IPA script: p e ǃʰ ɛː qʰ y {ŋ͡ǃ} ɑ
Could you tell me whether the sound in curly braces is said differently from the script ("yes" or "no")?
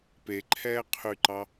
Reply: yes